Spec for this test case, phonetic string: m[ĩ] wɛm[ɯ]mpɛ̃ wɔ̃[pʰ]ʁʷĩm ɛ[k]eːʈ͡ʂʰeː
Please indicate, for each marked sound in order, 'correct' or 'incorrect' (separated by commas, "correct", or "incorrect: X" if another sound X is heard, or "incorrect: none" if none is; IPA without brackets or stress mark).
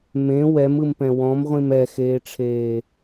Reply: incorrect: ẽ, correct, incorrect: m, incorrect: x